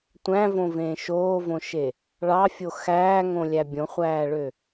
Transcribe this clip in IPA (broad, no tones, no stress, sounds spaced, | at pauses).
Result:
tʷ æ̃ v õ v ẽː ʃ oː v õ ʃ e | ɭ ɑ fʲ o x æː ŋ õ lʲ æ bʲ õ χʷ æː ɭ ø